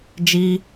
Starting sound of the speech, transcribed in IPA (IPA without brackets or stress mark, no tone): d͡ʒ